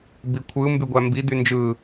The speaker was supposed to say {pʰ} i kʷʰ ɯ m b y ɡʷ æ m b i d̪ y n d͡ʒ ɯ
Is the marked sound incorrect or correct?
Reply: incorrect